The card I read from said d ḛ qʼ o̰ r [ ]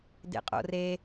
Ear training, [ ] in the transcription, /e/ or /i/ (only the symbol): e